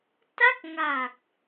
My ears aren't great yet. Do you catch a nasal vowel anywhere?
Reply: no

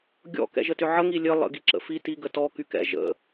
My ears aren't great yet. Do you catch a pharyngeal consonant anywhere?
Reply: yes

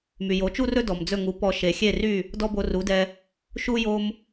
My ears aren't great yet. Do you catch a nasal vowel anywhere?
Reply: no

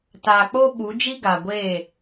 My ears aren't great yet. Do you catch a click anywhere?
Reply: no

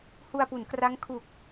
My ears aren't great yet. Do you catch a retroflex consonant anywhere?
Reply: no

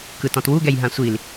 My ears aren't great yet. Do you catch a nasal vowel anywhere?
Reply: yes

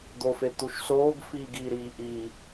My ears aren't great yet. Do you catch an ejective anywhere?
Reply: no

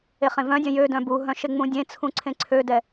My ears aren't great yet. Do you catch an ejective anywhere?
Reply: no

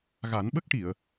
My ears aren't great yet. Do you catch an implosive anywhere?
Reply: yes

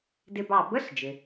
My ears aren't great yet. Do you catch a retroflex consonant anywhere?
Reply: no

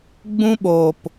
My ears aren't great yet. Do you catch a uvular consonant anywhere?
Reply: no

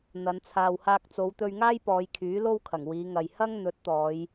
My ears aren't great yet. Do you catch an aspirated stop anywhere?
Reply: yes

